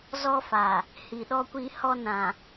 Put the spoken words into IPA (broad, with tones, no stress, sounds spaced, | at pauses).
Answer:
z ɔ˦ f a˨ | h i˨ ɗ ɔ˦ kʷ i˦ h ɔ˦ n ã˨